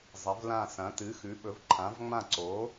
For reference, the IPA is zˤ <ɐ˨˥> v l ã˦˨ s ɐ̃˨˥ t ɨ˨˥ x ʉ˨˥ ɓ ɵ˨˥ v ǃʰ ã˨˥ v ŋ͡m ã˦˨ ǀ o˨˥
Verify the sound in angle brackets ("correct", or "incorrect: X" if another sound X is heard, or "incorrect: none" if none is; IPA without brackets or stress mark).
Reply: correct